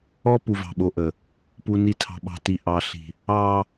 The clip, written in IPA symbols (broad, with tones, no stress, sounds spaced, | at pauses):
ɔ˦ p u˨ v ɑ̤˨ ɓ o˨ ʔ ə˨ | p u˨ n i˨ tʰ ɑ̤˨ ɓ ɑ̤˨ t i˨ ʔ ɑ˨ ɬ i̤˨ | ɑ˨